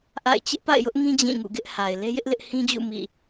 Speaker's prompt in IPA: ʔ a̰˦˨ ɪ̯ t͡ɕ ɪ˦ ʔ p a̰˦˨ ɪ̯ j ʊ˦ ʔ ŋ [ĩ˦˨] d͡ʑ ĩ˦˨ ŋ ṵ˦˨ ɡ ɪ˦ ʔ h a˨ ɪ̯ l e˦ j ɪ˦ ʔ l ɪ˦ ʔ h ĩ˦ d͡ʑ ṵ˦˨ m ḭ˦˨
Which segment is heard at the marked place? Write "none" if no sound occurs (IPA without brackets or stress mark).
ĩ˦